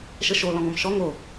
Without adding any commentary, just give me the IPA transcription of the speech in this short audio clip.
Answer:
ʃəʃo lɔ̃ŋɔ̃mʃɔ ŋo

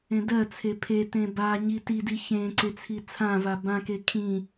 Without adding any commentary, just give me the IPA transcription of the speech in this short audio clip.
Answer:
ẽdɜt͡sʰe pʰe tẽbaɲi tidi çẽǀe t͡sʰit͡sʰãva bãke kʰĩ

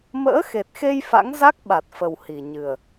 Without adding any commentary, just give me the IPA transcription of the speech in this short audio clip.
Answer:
mə̰ː˧˥xe˨˩t̚xe˧j fa̰˧˥ŋ za˦˥k̚ɓa˨˩t̚fə˨˩w hi˨˩ɲɨ˨˩ə̯

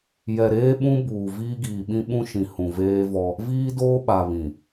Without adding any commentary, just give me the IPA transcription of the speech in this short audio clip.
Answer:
jɛ˨ɾeː˦ɓũ˦ buː˨viː˦ɡiː˨ ɓĩ˦ɓũ˦ʃĩ˨ hũ˨veː˦vɔ˦ | viː˦doː˦ɓa˨ βĩ˨

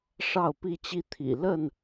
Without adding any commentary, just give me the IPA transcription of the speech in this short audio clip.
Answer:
ʂɑ˥˨ʊ̯pi˥˨t͡ɕi˦ t̪ʰḭ˨˩lə˥˨n

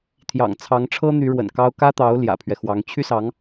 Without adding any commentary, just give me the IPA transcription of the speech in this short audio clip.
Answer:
t̪ʰjɑ̰˨˩ŋt͡sʰɑ˧˥ŋʈ͡ʂʰɤ˥ n̪y˧˥ɻwə̰˨˩nkɑ˥ʊ̯ kä˥t̪ɑ˧˥ʊ̯ ljä̰˨˩pʰɥɛ˦xwɑ˧˥ŋ t͡ɕʰy˥sɑ˧˥ŋ

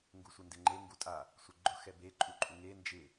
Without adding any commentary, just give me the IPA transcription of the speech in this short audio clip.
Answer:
ŋɡusʷendɪŋ͡ǃe ŋɡutʼa | sʷeɡ͡ǃʊ xɛbe ǃʼuǃʼuŋe nd͡ʒɪ

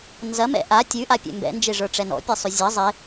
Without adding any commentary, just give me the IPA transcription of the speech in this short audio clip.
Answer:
nzɐmɛ̰ ʔa tʲʉʔapʲɛ̰ mbɛ̰nd͡ʒeʐə˞ʈ͡ʂɛ nɔ̰pʲɛsˤʉ zʲɐ zˤe

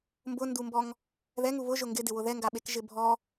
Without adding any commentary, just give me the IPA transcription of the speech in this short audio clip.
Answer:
mbʊndumbɔŋ | ðɛŋu βʊ ʒʊŋɡɪdɪwʊ ðɛŋɡaɓek ʒɪbʱɔ

